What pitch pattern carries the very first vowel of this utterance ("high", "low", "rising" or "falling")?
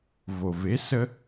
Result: low